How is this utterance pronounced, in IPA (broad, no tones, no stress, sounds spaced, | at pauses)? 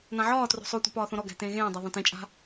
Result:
n ã ʕ ɒː t r o̤ sˤ o tʷ a̤ p ɒː θ õ ɾ ɔ ɡ æ̤ t ẽː ɣ ẽː dˤ a ðˤ õ t ẽ t͡ʃʼ a̤